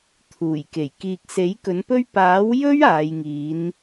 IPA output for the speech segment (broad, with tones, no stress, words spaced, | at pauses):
t̪ʰuː˨˩jke˨˩j kiː˨k̚se˨˥j kɵ˨˥npɵ˥ɥ paː˨˥wjɵ˥ɥ aː˨˧jŋiː˨˥n